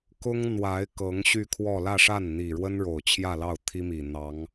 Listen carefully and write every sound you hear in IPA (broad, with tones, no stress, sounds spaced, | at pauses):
k ʊ˥ ŋ n̪ w a˧˥ ɪ̯ k ɤ˧˥ ŋ ɕ y˥˧ kʰ w ɔ˥˧ l ä˥˧ ʂ a˥˩ n n̪ i˨˩ ɻ w ə˥ n ɻ o˨˩ ʊ̯ t͡ɕʰ j ä˥˧ l ɑ˥˩ ʊ̯ t̪ʰ i˥ m i˨˩ n̪ ɑ˧˥ ŋ